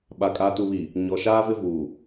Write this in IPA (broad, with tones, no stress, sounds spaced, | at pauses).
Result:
ɓ a˨ kʼ a˨ t u˨ β i˨ | ɲ ɔ˨ ʃ aː˦ v ɪ˦ v uː˨